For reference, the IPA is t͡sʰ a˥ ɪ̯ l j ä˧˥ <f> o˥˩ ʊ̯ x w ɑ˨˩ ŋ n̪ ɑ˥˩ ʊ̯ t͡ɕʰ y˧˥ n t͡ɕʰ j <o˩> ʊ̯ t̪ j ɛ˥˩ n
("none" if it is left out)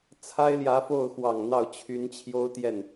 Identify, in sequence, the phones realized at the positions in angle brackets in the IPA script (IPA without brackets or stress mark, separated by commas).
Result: f, o˥